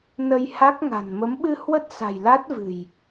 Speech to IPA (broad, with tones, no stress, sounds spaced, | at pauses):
n ə˧ j h a˦˥ k̚ ŋ a̤˨˩ n m ə˨˦ m ɓ ɨ˧ h w ə˦˥ t̚ s a̤˨˩ j l a˦˥ t̚ v ɨ̤˨˩ j